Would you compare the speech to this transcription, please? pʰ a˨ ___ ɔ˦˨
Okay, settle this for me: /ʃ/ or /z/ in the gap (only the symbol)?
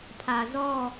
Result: z